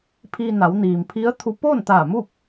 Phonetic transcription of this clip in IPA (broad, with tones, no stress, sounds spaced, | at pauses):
pʰ iː˧ n a˩˧ w n iː˩ m pʰ i˧˥ ə̯ t̪ʰ u˧ p oː˥˨ n t̪ aː˧˩ m u˥˨ p̚